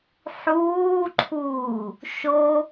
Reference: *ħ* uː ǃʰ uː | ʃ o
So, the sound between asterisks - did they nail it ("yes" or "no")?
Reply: yes